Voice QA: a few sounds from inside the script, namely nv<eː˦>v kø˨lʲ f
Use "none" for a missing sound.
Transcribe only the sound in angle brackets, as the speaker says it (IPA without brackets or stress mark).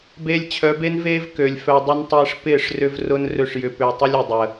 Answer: eː˦